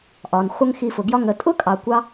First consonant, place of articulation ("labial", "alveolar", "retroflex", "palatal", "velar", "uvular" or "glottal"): glottal